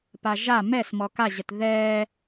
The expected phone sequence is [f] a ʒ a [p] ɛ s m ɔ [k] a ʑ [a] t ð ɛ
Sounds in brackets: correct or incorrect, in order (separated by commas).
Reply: incorrect, incorrect, correct, incorrect